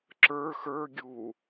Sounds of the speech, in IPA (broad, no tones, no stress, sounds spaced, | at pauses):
ǁ ə˞ x ə˞ ɡʲ u